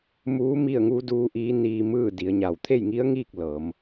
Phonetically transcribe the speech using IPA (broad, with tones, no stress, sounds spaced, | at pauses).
m uː˧˥ m i˥˨ ə̯ ŋ uː˧˥ d uː˧˥ ʔ iː˧˥ n iː˧ m ɯː˥˨ d i˩˧ ə̯ ɲ a˧˩ w t̪ʰ e˥˨ j ŋ i˧˥ ə̯ ŋ iː˥˨ k̚ l ɤː˩˧ m